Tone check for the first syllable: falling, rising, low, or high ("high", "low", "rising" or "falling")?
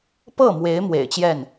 falling